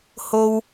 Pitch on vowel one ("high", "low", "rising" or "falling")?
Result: high